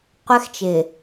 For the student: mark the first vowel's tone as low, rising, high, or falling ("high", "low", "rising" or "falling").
high